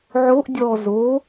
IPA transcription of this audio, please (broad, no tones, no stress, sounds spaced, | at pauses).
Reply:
ʕ o ʔ dʲ ɔ z o